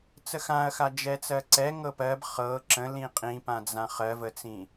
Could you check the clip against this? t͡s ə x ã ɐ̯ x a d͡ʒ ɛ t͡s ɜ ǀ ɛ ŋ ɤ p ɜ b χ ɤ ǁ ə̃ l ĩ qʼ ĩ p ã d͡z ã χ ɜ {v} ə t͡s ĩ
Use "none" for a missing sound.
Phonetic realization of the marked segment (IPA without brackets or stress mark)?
v